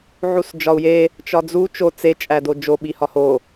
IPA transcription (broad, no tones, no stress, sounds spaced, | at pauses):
ʕ u s d͡ʒ ɒ u̯ j e | t͡ʃ ɒ d͡z u t͡ʃ o t͡s e t͡ʃʼ æ d o d͡ʒ o ɓ i h ɒ h o